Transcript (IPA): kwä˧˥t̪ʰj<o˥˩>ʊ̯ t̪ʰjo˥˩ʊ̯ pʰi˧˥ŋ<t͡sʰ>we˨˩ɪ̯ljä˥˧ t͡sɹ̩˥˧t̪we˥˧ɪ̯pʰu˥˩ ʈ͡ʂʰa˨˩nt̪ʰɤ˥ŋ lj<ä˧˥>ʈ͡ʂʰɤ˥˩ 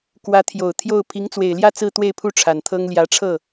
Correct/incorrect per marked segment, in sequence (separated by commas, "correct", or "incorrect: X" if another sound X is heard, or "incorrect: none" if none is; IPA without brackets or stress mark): incorrect: o˨˩, incorrect: t͡s, correct